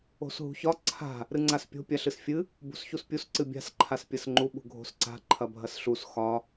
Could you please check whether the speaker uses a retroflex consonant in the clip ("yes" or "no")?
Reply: no